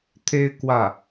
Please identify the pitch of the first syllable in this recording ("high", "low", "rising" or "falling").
high